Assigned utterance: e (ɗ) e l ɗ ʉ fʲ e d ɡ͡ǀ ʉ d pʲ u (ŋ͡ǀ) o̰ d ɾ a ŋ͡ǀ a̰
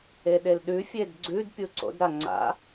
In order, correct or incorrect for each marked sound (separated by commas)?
correct, incorrect